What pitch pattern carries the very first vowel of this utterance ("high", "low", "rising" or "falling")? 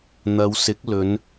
low